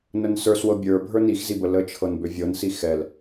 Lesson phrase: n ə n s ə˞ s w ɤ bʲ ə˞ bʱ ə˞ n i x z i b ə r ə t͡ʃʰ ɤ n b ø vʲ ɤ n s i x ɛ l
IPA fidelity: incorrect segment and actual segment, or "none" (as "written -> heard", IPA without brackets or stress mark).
r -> l